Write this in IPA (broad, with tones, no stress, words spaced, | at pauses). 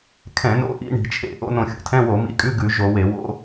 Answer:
kʰɛ̃˧˩˧no̰˧˥˧ʔḭ˧˥˧ ɳi̤˧˩˧t͡ʃʰḛ˧˩˧ ʔo̰˧˥˧nõ˧˩˧xʲo̰˧˩˧tʰɛ̃˧˥˧ wo˧˩˧mḭ˧˥˧kʼʉ˧˥˧ ɡʉ˧˩˧ ʒo˧˩˧we˧˩˧ wo̰˧˥˧